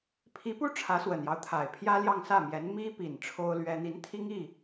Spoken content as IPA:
pʰ i˧˥ p u˥ ʈ͡ʂʰ ä˧˥ s w ə˨˩ n j ɑ˦ ʊ̯ t̪ʰ a˨˩ ɪ̯ pʰ j ä˥ l j ɑ˥˧ ŋ s ä˥˩ m j ɛ˧˥ n m i˥ p i˨˩ n ʈ͡ʂʰ o˥ ʊ̯ l ɥ ɛ˥ n̪ i˧˥ n t̪ʰ i˥ ŋ i˥˩

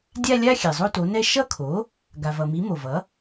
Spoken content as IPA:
dʲ a˥˧ lʲ a˥˧ xʲ ɛ˩ zˤ o˥˧ t o˩˥ n ɛ˥˧ ʃ ʌ˥˧ kʰ o˩˥ | ɡ a˩ v ʌ˩ m i˩˥ m o˩ v ʌ˩˥

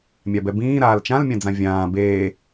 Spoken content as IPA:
mʲ a b ɛ b ĩː ɾ aː l t͡ʃ ã l mʲ ã d͡z ã vʲ ãː b eː

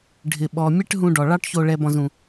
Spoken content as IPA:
ɖʱ ɪ˧ ɓ ɔ˨ mʲ ɛ˦ ʈ ɦ ũ˧ ɖ ɔ˨ ɭ ɑ˦ ʈ ç o˧ ɭ ɛ˧ b ɔ̃˧ z ũ˧

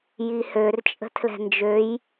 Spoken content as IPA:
j i h ø r t͡ʃʼ ə̤ tʰ l ɛ̤ n d͡ʒ ø j

